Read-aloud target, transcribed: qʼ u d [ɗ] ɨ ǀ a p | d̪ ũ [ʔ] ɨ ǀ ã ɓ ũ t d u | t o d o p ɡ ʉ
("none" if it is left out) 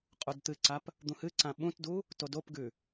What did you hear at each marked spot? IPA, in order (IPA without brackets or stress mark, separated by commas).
t̪, h